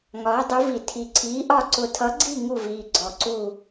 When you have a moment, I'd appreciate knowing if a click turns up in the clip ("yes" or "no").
yes